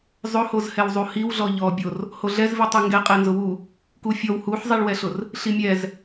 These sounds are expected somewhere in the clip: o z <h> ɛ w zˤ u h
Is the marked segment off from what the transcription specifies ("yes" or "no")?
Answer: no